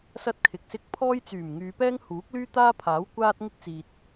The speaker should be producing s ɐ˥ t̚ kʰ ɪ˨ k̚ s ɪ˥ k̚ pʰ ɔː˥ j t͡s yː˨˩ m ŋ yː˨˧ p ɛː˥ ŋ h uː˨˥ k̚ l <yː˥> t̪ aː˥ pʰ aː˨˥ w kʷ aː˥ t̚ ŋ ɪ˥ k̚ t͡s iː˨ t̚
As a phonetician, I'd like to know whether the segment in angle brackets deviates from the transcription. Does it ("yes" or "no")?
no